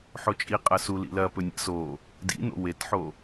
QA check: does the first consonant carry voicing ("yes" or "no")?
no